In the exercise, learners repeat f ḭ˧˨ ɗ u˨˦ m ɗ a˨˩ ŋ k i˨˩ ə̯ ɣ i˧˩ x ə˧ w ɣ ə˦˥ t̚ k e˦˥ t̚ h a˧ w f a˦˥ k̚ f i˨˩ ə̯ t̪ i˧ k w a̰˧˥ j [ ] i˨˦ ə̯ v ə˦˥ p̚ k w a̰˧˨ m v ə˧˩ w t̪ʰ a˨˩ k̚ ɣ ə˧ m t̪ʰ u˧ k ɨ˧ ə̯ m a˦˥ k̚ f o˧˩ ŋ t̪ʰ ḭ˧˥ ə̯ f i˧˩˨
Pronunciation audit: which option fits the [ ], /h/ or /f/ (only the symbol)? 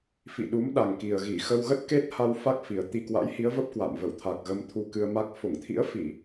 h